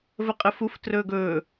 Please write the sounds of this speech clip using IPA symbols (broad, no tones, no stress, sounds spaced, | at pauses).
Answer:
v ə qʼ ə f u f t r ɵː ɡ ɵː